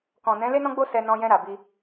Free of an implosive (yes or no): yes